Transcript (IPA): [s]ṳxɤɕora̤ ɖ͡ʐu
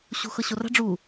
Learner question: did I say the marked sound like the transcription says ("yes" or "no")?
no